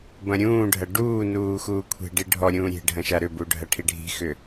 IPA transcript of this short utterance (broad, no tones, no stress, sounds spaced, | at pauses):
b ɐ̃ ɾʲ ũː ɖʱ ɐ ɖ uː n uː x uː kʷʰ e̤ ɖ i ɖʱ ɔ ɾʲ ũː ɾʲ e̤ ɖʱ ɐ̃ ʃ a ɾ ʏ b u ɖʱ ɐ ʈʰ i ɖʱ i̤ x ʏ